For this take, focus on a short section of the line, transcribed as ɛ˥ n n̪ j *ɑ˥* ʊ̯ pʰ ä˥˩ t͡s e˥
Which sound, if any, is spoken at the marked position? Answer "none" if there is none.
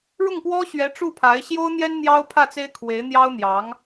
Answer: ɑ˥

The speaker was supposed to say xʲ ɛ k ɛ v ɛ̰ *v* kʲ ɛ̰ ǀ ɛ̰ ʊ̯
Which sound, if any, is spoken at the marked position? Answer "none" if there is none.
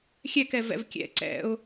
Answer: v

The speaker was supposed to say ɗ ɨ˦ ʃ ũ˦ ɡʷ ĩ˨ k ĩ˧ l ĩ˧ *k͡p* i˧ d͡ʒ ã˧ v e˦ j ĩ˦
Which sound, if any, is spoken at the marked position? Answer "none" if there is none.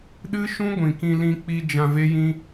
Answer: k͡p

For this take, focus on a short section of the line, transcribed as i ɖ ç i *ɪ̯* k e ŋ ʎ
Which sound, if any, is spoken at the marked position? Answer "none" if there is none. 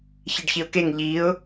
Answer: ʊ̯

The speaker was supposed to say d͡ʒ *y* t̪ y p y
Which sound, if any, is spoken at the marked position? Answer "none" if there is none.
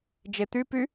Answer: e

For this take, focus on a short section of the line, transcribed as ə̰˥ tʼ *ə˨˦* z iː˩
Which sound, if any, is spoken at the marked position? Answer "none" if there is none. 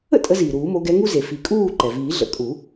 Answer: ə˨˦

